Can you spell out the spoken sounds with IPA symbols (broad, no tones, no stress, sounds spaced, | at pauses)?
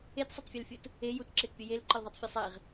e t sˤ ə tˤ fʲ e l fʲ u t | e j u t ǁ e t pʲ ɯ j e l ǃ ə l ðˤ e tˤ fʲ e sˤ e ʁ